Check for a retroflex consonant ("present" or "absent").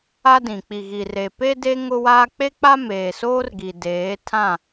absent